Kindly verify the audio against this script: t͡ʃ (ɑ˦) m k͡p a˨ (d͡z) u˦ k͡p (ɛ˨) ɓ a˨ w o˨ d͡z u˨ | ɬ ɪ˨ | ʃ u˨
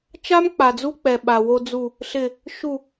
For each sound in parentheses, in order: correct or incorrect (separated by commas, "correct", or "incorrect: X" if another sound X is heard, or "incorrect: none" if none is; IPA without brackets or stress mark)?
incorrect: a˦, correct, correct